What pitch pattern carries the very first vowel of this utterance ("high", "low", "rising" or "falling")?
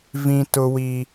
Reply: high